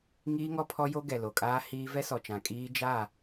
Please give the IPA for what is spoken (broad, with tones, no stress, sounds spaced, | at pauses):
ŋ iː˦ ŋ ɔ˦ pʰ ɔ˦ j o˦ ɡ ɛ˨ l o˨ kʼ aː˦ h iː˦ v ɛ˦ s ɔ˨ t͡ʃ ã˨ kʼ iː˦ d͡ʒ a˦˨